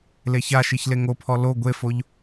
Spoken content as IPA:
leçaʃiç leŋopʰɔ lo ɡʷefoʎ

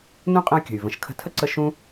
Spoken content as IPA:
nũ˥qʼə̃˦y̯kʲə̤˩y̯ və̃˨ʃkʰə̤˦tʰə˥ ǀə˦ ʃũ˥

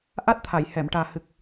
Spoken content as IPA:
ʔa˦˥t̚t̪ʰa˨˩˨j hɛ˨˩˨mʈaː˨˩hɨ˨˩k̚

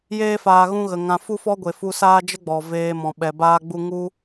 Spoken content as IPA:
jeː˦ faː˧ɣũ˦ɣə˨ŋã˧ fu˦fɔ˦ɡʷe˨ fu˧saː˦d͡ʒə˦ɡ͡bɔ˨ veː˧mɔ̃˨ɓɛ˨baː˦ ɡ͡bu˦ ŋu˦

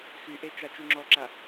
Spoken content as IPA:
xyʔe t͡ʃat͡ʃyŋ͡ǁɔǁa

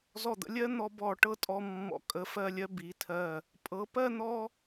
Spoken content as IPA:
zɔ˧˩d̪ə̰˩˧lʲɜ˥n̪ɔ˧ bɔ˧˩ʈɤ˥tʼɔ˧ mːɔ̰˧˩ kʼə˧fɜ˥˧lʲɜ˥ bi˩˧tʰɜ˧˩ | pʼɤ˩˧ pɜ˥˧ n̪ɔ˥

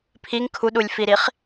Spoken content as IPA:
pʰiŋ kʰuɗulʲfiɾiχ

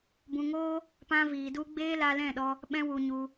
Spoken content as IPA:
bũ˧ŋoː˦ | pã˦viː˧du˦ ɡ͡beː˦la˧lɛ̃˦˨ɗɔ˧ | ɓɛ̃˦wu˧ɲu˧

